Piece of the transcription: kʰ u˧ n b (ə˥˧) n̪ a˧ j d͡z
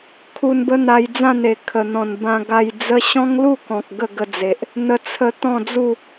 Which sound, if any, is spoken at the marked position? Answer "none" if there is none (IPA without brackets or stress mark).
ə˦